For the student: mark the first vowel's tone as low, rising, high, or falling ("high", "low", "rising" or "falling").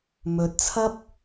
low